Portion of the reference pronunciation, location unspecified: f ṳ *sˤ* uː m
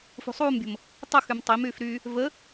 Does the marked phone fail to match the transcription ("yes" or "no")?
no